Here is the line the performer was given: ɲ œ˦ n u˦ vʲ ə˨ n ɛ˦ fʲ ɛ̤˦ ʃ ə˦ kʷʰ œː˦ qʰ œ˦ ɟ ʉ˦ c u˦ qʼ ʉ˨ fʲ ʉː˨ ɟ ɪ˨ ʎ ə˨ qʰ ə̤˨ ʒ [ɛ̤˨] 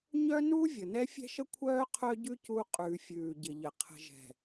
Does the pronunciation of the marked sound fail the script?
no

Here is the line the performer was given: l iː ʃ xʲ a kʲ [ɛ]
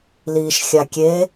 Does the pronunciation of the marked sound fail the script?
yes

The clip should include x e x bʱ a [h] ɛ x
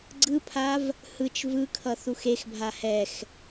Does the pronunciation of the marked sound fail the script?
no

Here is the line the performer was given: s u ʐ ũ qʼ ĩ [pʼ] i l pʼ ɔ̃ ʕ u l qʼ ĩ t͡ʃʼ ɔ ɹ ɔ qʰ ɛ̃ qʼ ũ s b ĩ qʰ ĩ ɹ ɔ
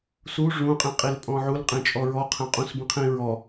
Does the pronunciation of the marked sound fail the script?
yes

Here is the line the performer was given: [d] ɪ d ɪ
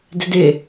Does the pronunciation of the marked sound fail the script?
no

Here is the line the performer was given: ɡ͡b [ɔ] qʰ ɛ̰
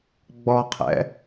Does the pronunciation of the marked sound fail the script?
no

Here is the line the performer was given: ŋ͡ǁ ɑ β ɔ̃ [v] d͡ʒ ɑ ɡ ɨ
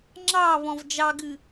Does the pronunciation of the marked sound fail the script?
no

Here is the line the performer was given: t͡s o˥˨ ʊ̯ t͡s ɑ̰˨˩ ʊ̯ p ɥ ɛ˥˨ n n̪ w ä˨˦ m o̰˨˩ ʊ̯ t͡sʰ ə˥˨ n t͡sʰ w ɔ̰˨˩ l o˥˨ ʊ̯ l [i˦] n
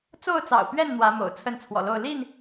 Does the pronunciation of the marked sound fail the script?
yes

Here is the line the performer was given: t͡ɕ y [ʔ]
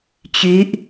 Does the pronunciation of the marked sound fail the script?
no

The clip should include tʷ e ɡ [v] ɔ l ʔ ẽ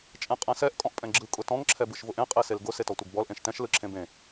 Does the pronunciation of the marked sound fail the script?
yes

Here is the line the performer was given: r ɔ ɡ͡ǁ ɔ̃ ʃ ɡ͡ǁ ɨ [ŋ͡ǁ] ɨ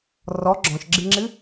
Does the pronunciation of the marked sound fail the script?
no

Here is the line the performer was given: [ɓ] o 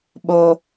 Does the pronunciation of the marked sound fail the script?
no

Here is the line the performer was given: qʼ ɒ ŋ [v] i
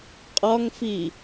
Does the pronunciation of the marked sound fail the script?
yes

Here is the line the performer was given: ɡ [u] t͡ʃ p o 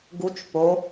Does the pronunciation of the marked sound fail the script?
no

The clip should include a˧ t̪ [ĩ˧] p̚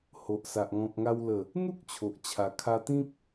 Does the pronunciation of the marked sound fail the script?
yes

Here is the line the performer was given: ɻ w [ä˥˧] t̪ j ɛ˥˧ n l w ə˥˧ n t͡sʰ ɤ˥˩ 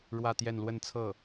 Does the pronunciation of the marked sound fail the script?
no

